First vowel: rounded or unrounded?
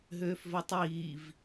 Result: rounded